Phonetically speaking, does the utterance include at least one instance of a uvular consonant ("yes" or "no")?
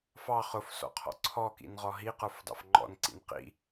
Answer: yes